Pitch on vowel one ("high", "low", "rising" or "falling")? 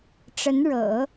rising